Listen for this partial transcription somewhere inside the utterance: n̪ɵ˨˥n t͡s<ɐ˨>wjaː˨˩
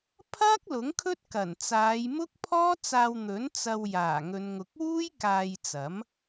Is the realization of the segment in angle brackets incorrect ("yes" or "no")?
yes